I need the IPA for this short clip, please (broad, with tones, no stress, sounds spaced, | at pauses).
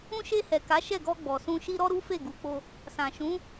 ũ˧ ʃ e˧ h ɛ˨ k a˨˦ ʃ ɛ˦˨ ɡ ɔ˧ ɡ͡b ɔ˨ s ũ˧ ʃ i˦ ɾ ɔ˦ ɾ u˦ f e˦˨ ɡ u˨˦ k͡p o˧ | s ã˨ ʃ ũ˨˦